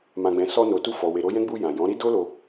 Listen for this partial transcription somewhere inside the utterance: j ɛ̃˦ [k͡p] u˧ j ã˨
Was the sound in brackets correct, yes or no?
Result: no